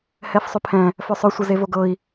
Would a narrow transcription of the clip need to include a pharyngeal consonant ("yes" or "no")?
no